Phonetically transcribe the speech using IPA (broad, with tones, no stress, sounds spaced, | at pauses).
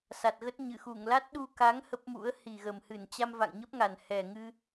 s a˨˩ t̚ ɣ ə˦˥ t̚ ɲ ɨ˧˩ x u˧˩ ŋ l a˦˥ t̚ ɗ u˧ k a˨˦ ŋ h ə˦˥ p̚ m ṵ˧˥ ə̯ h i˨˩ ɣ ə˨˩ m h ɨ˧˩ n t͡ɕ a˧ m v a̰˧˨ ŋ ɲ ə˦˥ p̚ ŋ a˨˩ n h ɛ˨˩ ŋ ɨ˧